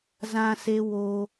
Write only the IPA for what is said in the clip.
z ã˦ s e˦ w o˦

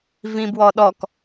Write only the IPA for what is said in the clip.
v ĩ b w ɔ ɗ ɔ k

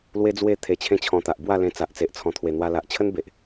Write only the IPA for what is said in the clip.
l w e˦ d͡z w e˥˧ t̪ʰ e˧ t͡ɕʰ ẽ˦ t͡ɕʰ ɔ̃˧ t̪ a˨ ʔ b w a˥˧ l ẽ˧ t͡s a˨ ʔ t͡s e˨ ʔ t͡sʰ ɔ̃˨˩ t̪ʰ w e˨˩ n̪ w a˧ l a˨ ʔ t͡ɕʰ ə˦ n b e˨ ʔ

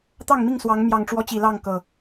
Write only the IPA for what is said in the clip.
t̪ ɑ˥˨ ŋ m i˥˨ ŋ s w ɑ˨˦ ŋ m j ɑ˨˩ ŋ ʈ͡ʂ w ɔ˦ t͡ɕ i˨˩ l ɑ˥˨ ŋ k ɤ˨˩

